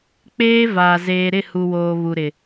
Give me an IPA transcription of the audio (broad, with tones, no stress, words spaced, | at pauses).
k͡peː˦va˨ zeː˨ɾɪ˦˨hu˨woː˨ βu˨ɾɪ˨